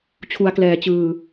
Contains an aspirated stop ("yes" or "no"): yes